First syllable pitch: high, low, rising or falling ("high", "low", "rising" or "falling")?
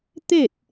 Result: falling